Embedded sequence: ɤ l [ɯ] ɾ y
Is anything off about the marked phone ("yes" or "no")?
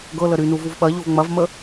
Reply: yes